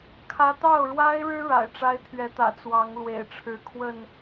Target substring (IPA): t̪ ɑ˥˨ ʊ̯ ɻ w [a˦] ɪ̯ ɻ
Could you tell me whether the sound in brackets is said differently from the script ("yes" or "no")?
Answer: no